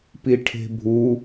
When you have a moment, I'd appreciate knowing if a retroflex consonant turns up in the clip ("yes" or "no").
yes